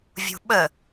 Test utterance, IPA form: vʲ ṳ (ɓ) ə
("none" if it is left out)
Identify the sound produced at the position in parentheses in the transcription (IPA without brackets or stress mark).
ɓ